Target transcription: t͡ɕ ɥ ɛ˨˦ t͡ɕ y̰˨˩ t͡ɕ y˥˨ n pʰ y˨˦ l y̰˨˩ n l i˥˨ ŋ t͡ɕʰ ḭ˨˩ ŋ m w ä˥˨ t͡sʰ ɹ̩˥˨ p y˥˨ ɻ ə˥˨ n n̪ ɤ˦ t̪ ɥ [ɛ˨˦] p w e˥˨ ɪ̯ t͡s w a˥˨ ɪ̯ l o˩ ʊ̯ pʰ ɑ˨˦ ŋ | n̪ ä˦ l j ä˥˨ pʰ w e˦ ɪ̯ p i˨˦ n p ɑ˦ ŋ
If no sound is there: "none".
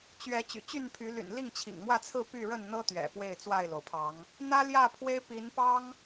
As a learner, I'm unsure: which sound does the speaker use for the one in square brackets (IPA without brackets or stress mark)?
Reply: ɛ̰˨˩